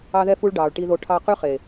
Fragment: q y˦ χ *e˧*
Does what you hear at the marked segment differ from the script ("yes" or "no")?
yes